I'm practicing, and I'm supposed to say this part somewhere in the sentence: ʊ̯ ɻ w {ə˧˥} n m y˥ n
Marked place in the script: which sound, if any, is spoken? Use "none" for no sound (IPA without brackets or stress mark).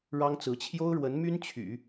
ə˧˥